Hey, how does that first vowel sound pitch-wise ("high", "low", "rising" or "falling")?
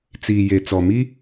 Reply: low